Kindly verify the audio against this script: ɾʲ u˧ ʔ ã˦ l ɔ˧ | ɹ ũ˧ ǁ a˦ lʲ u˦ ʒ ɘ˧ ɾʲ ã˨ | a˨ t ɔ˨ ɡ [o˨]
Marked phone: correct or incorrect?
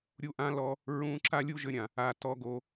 correct